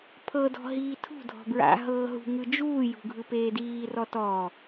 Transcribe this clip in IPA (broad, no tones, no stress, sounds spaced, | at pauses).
pʰ ɤ d ɔ̤ ɦ iː tʰ ṳ dʱ ɔ̤ b ɹ a̰ ɦ ɤː ɦ ṳ ŋ ɯ d͡ʒ uː j ṳ ɡʱ ɯ p eː d iː r ɔ t ɔː